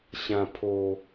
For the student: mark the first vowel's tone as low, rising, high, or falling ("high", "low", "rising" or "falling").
low